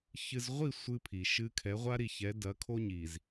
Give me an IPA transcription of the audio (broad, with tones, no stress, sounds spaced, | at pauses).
ç ɨ˨ z ʁʷ i˦˨ sʷ ɨ˦ pʰ i˨ ʃ ɨ˦ kʰ ɛ˨˦ ʁʷ a˦ ɾ i˨ ç ɛ˨˦ d ɐ˨˦ kʰ o˦ ɲ i˨ z